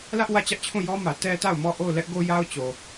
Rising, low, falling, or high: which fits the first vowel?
high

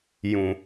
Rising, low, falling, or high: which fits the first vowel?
low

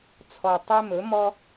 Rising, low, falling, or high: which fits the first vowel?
low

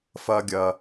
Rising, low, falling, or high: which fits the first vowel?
low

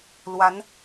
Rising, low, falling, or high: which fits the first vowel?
rising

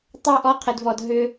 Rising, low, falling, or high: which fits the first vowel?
falling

